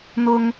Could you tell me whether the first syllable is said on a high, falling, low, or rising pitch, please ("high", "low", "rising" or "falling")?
high